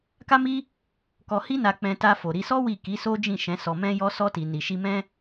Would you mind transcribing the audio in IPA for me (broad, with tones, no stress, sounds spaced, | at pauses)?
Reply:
k a˦ m i˦ | k ɔ˧ h i˦ n a˧ k͡p ɛ̃˧ t a˧ f o˨ ɾ i˧ s ɔ˦ w i˦˨ k i˨˦ s o˦ d͡ʒ ĩ˦˨ ʃ ɛ̃˨˦ s ɔ˧ m ɛ̃˦ j ɔ˦ s ɔ˧ t i˨ n i˨ ʃ i˧ m ɛ̃˦